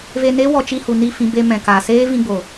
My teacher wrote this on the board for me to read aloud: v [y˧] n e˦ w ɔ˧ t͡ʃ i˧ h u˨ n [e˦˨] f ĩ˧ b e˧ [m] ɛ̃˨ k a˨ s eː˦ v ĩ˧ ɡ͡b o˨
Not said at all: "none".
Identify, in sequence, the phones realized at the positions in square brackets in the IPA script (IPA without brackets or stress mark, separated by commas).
e˧, i˦˨, m